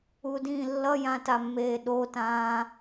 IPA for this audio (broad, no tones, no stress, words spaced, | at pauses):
udĩːlːʌjã tamːeːɗotãː